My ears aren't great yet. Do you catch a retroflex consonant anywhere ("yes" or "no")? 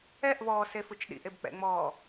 no